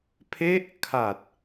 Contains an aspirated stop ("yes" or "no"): yes